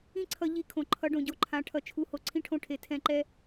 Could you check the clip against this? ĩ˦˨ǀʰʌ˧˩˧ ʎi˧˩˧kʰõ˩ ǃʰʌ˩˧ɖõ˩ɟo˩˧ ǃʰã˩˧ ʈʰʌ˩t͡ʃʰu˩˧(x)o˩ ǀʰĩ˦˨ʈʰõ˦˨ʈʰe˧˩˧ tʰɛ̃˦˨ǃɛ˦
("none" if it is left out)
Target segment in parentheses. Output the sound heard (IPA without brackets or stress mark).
h